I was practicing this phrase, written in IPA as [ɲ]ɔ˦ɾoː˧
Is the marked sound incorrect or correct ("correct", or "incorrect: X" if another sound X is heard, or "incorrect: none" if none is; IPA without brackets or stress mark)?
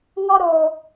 incorrect: ŋ